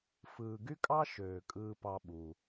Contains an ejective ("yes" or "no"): yes